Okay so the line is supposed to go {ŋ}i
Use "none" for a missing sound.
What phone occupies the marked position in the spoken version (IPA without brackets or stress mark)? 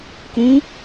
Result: k